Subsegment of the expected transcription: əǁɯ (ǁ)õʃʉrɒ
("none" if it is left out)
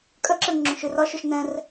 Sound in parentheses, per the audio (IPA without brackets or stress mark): ŋ͡ǁ